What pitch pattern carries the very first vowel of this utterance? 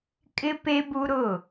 high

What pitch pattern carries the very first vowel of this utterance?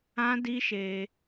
high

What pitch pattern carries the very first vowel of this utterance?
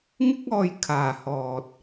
high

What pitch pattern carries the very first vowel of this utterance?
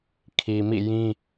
low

